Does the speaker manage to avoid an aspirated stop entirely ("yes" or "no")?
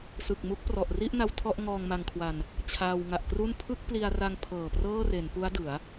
no